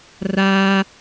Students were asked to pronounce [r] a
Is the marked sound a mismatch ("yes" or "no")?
no